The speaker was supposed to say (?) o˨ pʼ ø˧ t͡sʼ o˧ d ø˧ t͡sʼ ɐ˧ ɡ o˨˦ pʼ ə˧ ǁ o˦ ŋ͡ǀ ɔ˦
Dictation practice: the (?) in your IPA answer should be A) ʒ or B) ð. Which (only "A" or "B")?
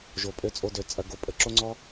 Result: A